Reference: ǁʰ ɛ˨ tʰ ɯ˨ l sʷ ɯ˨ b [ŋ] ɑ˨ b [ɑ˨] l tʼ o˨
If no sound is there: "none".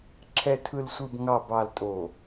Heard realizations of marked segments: ŋ, ɑ˨

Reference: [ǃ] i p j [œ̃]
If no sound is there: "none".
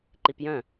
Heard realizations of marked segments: ǃ, œ̃

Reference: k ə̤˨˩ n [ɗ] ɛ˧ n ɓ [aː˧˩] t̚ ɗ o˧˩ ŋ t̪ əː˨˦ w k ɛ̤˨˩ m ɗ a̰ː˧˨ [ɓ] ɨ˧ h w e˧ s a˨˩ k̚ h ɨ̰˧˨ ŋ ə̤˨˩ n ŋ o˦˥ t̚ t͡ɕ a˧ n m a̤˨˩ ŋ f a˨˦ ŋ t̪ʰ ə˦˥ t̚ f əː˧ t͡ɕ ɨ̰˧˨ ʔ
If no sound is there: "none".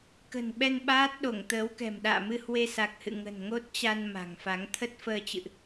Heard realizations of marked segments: ɓ, aː˦˥, m

